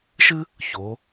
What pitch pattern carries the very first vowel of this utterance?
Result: high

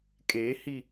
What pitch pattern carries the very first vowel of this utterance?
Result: rising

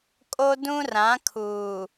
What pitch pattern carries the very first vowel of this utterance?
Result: high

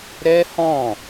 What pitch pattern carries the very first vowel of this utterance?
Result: high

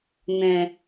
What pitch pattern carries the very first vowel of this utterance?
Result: low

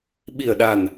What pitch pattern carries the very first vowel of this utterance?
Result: low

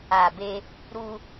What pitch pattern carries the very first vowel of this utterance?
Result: low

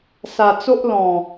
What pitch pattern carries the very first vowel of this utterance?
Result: low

